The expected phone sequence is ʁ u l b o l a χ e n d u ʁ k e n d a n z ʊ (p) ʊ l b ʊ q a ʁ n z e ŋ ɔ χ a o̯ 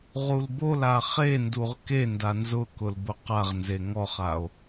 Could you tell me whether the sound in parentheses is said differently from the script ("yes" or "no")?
yes